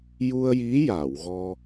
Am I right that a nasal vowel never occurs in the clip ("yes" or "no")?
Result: yes